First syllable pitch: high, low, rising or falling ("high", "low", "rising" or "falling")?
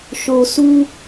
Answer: low